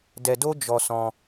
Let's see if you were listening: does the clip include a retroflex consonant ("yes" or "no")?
no